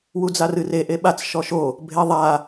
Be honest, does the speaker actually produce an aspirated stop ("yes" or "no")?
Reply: no